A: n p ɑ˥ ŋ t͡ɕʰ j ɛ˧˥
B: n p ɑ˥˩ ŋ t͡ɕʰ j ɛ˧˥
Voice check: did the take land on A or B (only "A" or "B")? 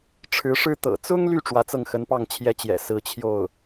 B